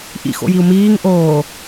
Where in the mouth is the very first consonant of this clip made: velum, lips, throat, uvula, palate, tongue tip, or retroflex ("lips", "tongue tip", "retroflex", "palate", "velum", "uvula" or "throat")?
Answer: throat